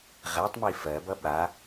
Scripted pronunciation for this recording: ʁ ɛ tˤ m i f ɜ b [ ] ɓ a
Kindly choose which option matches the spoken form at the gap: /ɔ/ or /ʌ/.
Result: ʌ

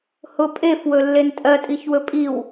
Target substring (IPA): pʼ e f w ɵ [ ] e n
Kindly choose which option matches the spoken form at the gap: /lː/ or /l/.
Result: lː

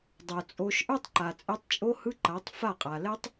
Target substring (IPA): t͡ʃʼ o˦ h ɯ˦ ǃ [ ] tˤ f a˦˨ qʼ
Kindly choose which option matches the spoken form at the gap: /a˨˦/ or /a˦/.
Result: a˨˦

